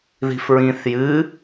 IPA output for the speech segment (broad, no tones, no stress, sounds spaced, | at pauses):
ð i̤ f ɹ ĩ θ j ɨ